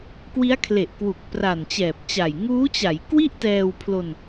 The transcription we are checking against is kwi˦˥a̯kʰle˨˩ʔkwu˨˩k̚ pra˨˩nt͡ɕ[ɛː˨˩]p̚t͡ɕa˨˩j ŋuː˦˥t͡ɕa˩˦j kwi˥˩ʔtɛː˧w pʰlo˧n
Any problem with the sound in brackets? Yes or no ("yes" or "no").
no